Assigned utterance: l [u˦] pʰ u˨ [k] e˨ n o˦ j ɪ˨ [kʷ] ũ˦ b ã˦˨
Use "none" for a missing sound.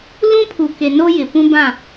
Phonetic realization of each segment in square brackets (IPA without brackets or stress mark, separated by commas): ũ˦, k, p